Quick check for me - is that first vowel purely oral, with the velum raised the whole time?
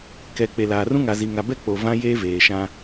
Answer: yes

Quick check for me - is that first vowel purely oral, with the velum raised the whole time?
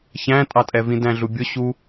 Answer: no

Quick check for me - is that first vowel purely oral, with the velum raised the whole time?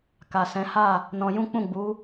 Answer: yes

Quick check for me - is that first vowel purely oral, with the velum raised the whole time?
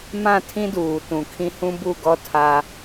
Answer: no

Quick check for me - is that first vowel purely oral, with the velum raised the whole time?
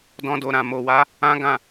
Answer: no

